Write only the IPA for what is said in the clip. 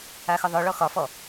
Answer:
axʊðˤʊɭɔ xɒfɔ

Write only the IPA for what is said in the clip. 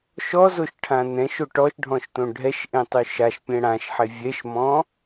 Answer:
ʃɔzoʃʈʰã nɛ̃ʃo ʈɔʃɖʱɔ̃ʃtõ ɖʱɛʃʔẽtˤʉ ʃaʃpʲɛ̃ ɽãʃħe vʲɛʃmɔ̃

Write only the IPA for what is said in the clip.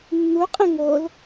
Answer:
nːuqʼə̃ ŋol

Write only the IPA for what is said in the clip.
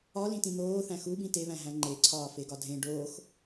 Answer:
ɒlĩtĩ n̪oːθæ̃ xubĩ teβæ̃ɦæ̃ ŋ͡ǃeǀʰɒːfeɡɒ dʱẽ ɖoːx

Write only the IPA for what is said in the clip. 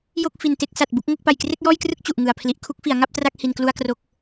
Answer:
jo˥˩k̚ fi˨˩nte˥˩k̚ sa˨˩t̚bu˦˥k̚ ŋo˥˩k̚ pa˨˩jkre˥˩k̚jɔː˥˩jkrɯ˥˩k̚ t͡ɕu˨˩ʔŋɯ˨˩a̯ pʰli˨˩ʔ kʰu˥˩k̚fi˩˦a̯ŋa˥˩p̚tra˥˩k̚ hi˧nklu˥˩a̯kro˦˥k̚

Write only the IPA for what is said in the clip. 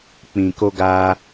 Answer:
k͡pĩ˨ko˧ɡa˧

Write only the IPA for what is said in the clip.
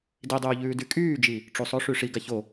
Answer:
didˤyːʎʉː dykʼyːd͡ʒi | ʈ͡ʂusˤo ʂyʂi ɡaço

